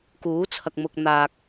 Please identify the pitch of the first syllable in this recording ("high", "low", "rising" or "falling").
rising